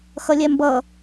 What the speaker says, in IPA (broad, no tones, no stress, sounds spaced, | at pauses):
x ʌ lʲ ɛ m b ʌ